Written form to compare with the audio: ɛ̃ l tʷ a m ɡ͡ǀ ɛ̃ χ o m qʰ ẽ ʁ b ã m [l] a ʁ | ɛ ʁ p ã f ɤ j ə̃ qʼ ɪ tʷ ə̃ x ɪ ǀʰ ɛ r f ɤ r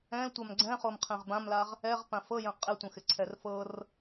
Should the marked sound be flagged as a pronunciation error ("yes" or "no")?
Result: no